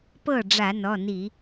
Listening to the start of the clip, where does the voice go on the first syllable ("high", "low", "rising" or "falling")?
falling